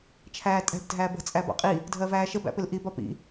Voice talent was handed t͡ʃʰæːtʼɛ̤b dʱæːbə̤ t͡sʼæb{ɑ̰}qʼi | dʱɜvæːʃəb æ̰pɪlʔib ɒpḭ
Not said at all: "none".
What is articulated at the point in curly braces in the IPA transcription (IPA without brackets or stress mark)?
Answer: ɑ̰